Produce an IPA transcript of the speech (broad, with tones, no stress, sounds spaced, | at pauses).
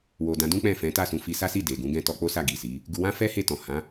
w o˨ d ã˧ d ũ˦ k͡p ɛ̃˦˨ f ɛ̃˨˦ t a˦˨ s ũ˨˦ f i˧ s a˦ s i˦˨ d e˨ ɡ ũ˨˦ ɡ ɛ̃˦ t ɔ˧ k͡p o˦ s a˦˨ ɡ i˨ s i˨˦ | ɡ u˧ w ã˦ f ɛ˦ h e˦˨ t ɔ̃˨ h ã˨˦